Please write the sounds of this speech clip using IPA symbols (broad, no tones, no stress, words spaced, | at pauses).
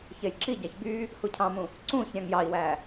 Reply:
çejǁiɟæç by | hucʰɑ̃mũ | ǀũç ɾʲɑ̃ŋjɑi̯wæ